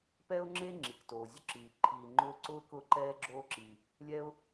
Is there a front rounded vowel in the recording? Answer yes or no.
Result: no